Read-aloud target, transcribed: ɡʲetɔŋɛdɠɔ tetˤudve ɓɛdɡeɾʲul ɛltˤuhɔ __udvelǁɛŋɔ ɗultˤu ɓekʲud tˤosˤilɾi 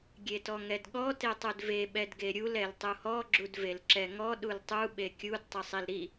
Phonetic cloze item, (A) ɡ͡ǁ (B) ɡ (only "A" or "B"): A